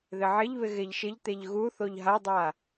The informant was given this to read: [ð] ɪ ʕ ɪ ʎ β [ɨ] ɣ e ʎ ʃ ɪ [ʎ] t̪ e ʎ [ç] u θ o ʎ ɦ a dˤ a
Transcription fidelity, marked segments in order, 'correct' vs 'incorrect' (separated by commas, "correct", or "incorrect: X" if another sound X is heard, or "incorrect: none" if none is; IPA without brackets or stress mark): correct, incorrect: ɪ, correct, incorrect: ɣ